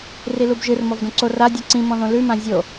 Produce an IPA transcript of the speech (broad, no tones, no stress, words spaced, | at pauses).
rilubʒɨr mɔvdõǀo radʲɯ ǀĩmɔ̃ðõ lʉmã zʲo